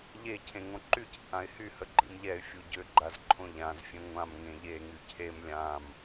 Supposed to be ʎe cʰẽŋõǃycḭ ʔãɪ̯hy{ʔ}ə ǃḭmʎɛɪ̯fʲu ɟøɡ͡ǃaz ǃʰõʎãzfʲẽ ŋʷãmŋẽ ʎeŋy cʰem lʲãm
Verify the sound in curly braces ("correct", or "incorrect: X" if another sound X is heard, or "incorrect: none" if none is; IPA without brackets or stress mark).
incorrect: h